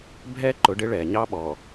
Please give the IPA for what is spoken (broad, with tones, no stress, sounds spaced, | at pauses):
bʱ ɛː˦ ǃ ʊ˨˦ ɖ ɪ˦ ɭ ɛː˨ ɲ ɑ˦ ɓ ɔː˨